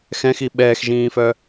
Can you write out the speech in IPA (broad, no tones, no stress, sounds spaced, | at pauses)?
x ɛ̃ x i ɓ ɛː x ʒ ĩː f œ